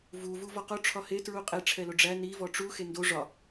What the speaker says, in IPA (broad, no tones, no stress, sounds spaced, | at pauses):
v u v u v ɒ q o ʈ͡ʂʰ ɒ h e t ɹ u qʼ e ʈ͡ʂʰ ɛ l o ɖ͡ʐ æ n i v ɔ ʈ͡ʂ u x e n d o ʐ ɒ